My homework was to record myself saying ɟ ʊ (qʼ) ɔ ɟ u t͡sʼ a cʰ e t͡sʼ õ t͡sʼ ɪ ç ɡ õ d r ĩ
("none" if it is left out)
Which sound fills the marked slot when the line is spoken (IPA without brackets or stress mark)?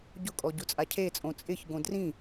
kʼ